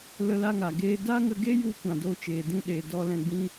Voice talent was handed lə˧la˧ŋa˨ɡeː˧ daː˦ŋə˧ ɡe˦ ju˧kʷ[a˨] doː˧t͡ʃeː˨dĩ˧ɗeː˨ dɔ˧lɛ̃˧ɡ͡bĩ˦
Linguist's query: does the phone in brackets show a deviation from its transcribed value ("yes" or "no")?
yes